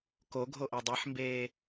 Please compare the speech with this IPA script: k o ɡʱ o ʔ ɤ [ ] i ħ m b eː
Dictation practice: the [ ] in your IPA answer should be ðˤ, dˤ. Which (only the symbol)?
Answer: dˤ